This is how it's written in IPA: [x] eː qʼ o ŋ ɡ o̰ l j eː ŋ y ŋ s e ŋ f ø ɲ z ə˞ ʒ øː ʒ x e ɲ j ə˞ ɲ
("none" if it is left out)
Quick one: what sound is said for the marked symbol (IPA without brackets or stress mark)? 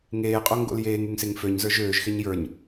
ŋ